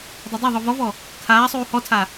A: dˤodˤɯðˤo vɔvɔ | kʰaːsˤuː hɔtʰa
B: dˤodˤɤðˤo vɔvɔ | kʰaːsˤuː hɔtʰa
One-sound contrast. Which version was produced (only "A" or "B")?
B